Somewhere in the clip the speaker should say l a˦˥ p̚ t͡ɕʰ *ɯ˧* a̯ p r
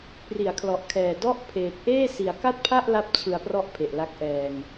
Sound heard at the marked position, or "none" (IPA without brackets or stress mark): ɯ˧